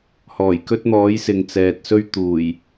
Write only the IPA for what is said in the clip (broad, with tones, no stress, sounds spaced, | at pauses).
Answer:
h ɔː˨˩ j k ɵ˥ t̚ n̪ ɔː˨˥ j s ɪ˨ ŋ t͡s ɛː˨ t̚ s ɵ˥ ɥ t̪ uː˨˩ j